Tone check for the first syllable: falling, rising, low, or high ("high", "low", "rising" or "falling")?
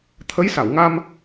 rising